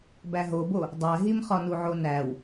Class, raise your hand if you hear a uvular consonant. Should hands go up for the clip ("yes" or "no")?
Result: yes